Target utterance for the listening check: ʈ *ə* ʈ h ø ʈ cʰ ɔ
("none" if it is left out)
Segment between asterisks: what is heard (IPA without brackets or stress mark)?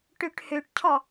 ø